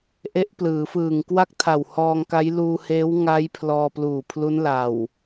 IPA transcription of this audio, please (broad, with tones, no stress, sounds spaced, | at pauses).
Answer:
ʔ e˦˥ ʔ p l ɯː˩˦ f ɯː˨˩ ŋ k w a˥˩ k̚ tʰ a˨˩ w h ɔː˧ ŋ k a˦˥ j l uː˧ h eː˦˥ w ŋ a˦˥ j pʰ l ɔː˧ p l uː˨˩ pʰ l u˦˥ n l a˨˩ w